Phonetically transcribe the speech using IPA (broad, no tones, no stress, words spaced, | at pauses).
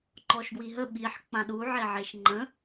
ŋ͡ǃɔʃɡwiɦə ɓiħ k͡pãɗuʕeʕeʃ ŋ͡ǃə̃